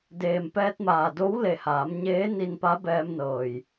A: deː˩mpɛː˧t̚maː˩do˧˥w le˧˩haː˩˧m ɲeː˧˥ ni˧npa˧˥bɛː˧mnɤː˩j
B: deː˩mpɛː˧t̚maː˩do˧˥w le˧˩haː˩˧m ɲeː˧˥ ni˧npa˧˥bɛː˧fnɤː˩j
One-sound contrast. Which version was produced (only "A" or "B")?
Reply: A